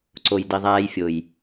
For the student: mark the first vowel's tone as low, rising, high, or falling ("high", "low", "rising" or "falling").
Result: low